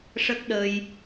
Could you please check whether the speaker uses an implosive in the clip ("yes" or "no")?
yes